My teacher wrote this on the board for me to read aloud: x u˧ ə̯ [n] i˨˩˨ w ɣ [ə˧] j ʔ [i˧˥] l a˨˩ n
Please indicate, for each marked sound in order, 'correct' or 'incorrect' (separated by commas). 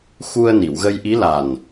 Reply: correct, correct, correct